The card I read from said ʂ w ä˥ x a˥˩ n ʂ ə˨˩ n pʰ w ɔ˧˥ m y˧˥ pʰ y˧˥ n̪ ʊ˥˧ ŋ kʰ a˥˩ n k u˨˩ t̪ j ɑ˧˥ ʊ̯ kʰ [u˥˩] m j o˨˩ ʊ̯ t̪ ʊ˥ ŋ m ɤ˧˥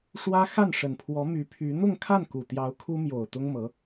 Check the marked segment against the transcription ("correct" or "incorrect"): incorrect